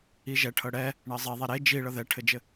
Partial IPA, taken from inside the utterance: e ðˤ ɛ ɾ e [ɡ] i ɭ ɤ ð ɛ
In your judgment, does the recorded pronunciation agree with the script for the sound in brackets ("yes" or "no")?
no